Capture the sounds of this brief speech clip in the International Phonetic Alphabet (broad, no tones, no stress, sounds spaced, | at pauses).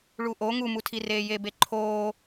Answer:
ɭ u ʔ o ŋ u m u tʰ i r eː j e b e ǃʰ oː